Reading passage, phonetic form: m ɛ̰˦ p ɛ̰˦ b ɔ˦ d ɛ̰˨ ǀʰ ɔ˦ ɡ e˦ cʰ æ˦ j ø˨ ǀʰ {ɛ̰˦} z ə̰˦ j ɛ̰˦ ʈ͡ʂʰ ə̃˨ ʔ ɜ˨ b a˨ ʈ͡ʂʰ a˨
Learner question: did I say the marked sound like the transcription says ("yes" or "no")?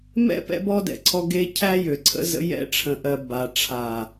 no